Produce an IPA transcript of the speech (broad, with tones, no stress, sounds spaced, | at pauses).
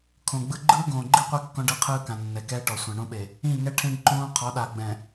kʰ õ˨ ɡ͡b ɯ˦ ɡ͡ǃ ɯː˦ ɡ õː˨ ɡ͡ǃ i˦ qʷ e˦ kː ɔ̃˦ ɖ ɯ˦ qʰ ɯː˦ k ã˨ nː ɛ˨ k ɛː˦ ʈ ɔ˨ sʷ ã˨ ɳ õ˦ ɓ e˨ | ĩ˦˨ ŋ ɛ˦ ʈʰ ẽ˦ ɖ ǃ õː˦ qʰ ɔ˨˦ ɗ a˨ ɡ͡b ɛ̃˨